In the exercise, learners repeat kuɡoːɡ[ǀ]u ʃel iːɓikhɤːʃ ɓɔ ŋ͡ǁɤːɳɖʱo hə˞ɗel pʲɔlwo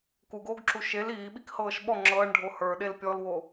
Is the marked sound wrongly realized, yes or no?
yes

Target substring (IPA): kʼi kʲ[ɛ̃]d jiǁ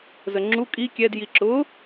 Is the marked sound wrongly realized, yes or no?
yes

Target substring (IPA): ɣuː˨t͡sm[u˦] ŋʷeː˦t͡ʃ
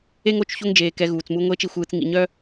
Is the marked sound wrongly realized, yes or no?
no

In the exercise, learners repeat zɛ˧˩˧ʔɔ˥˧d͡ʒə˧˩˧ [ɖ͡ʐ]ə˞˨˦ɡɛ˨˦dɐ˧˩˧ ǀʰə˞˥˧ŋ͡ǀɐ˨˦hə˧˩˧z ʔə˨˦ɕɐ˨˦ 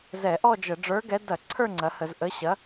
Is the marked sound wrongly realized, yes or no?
no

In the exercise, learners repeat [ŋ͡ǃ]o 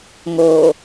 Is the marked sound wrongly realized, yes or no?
yes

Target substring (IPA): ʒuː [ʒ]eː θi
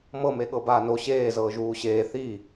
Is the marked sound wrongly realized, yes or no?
yes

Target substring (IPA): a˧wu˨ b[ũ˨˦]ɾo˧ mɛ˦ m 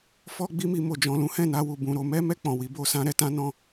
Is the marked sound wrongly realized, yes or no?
no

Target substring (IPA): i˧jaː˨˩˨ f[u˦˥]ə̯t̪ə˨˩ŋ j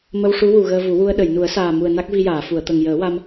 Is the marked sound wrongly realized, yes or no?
yes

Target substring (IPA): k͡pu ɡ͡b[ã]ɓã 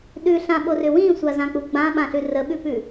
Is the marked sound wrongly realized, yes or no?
no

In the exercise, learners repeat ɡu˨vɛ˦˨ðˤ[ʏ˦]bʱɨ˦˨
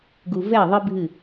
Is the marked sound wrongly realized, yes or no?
yes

